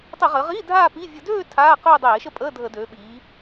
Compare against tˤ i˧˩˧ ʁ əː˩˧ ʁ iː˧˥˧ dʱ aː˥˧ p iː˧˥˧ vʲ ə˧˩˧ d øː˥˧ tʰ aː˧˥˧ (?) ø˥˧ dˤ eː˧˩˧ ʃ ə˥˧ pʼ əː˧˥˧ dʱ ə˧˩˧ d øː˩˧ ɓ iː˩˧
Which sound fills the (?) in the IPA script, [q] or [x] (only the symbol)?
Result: q